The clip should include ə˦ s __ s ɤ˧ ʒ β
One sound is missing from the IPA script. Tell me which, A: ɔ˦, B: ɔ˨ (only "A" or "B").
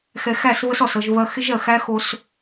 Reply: B